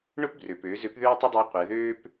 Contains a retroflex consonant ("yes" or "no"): yes